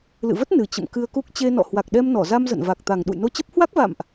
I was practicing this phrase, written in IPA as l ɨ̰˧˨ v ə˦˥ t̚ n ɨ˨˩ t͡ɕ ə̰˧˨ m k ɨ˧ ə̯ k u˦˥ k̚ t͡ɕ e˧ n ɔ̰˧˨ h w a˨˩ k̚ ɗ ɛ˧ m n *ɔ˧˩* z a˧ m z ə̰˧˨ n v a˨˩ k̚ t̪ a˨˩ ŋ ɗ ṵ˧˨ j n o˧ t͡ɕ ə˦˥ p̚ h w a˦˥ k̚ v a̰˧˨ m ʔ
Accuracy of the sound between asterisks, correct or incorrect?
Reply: correct